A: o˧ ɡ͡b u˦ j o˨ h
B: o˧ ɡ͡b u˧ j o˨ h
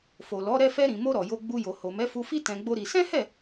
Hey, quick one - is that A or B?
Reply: B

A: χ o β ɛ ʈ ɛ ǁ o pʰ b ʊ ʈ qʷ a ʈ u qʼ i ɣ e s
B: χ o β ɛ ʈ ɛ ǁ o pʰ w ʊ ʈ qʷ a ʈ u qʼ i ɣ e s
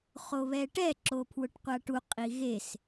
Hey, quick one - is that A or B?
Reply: B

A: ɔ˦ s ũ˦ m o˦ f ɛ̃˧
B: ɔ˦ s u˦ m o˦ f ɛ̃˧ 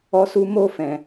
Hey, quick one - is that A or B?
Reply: B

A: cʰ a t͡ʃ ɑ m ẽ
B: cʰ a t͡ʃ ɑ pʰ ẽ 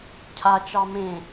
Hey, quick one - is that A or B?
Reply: A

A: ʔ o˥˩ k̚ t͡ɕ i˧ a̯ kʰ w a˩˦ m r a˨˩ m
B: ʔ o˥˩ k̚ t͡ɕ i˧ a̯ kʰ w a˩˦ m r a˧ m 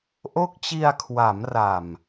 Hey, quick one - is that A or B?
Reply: A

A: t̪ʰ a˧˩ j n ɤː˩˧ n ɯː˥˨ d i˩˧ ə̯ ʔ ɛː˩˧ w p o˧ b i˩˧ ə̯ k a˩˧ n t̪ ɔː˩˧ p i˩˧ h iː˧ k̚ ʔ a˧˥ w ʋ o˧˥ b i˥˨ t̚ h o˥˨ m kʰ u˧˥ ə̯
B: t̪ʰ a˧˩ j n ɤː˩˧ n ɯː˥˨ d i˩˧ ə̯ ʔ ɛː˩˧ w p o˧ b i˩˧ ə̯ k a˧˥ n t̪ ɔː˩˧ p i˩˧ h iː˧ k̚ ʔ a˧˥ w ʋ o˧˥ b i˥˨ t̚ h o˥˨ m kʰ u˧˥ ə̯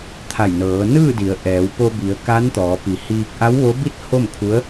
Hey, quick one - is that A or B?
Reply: B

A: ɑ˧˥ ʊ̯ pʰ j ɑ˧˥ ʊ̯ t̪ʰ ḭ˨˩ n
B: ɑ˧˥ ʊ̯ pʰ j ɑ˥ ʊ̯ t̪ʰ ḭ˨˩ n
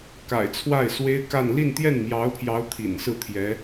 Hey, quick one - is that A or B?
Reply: A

